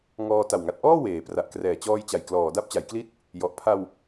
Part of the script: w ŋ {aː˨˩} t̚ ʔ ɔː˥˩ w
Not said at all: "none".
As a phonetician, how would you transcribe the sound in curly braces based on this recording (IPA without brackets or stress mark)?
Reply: a˨˩